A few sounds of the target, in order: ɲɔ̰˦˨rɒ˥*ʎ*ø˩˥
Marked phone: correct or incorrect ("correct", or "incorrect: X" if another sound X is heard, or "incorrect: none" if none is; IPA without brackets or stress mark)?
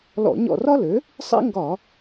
incorrect: l